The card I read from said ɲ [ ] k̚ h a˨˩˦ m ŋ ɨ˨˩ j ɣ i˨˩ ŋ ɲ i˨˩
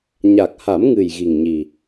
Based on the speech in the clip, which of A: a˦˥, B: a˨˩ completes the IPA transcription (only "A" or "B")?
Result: B